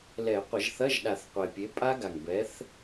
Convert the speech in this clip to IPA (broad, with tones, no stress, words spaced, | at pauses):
lɛ˨˩˦qʷɐ˨˩˦ʒθɐ˧˥˧ʒɗa˨˩˦θ qʷe˨˩pʲe˨˥pʼa˦˥ɡa˨˩ŋ bɛ˨˥θ